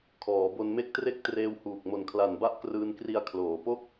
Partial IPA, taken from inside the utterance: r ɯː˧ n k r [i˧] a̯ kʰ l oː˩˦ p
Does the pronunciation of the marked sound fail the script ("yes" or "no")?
no